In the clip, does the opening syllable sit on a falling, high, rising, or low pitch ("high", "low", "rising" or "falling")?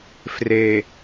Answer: low